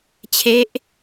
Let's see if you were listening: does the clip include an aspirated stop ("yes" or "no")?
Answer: yes